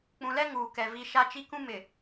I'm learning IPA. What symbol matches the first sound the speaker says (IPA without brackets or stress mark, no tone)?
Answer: k͡p